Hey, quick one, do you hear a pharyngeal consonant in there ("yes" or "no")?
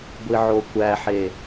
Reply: yes